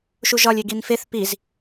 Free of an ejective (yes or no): yes